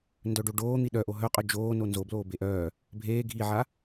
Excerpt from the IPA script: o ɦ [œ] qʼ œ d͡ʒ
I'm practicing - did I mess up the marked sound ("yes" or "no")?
no